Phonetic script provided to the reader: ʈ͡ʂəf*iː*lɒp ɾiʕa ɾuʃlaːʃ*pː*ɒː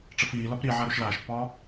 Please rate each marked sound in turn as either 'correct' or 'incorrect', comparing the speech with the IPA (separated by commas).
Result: correct, correct